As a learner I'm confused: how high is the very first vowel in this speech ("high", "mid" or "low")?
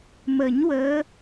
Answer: mid